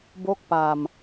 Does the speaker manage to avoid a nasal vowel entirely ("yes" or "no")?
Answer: yes